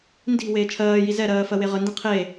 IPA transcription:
n d i̤ w eː t͡ʃʰ ɜː j i z ɛ ɾ ɜː f ɜ w e ʁ ə n d ĩ qʰ e

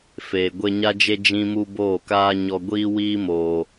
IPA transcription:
f e˨ ɡʷ e˧ ɲ a˦ d͡ʒ e˦ d͡ʒ ĩ˦ m u˦ b oː˦˨ k aː˦ ɲ ɔ˧ ɡʷ iː˦ w iː˦ m oː˧

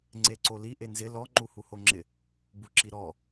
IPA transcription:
ŋ͡ǀ e ǀ o l i ʔ e n z ɪ l ɔ ŋ͡ǃ u h u h o ŋ͡ǁ ɪ | b u ǁ i ɾ ɔ

